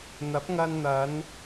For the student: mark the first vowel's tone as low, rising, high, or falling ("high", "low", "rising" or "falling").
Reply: rising